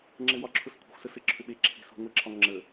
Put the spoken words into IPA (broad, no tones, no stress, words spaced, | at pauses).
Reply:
ŋ͡ǁɘwɒǁʰʊskʷʰə̤xʷ səsɘǁʰʏɓe ǁʰe̤sṳ ŋʷeǁʰɒŋŋ͡ǁə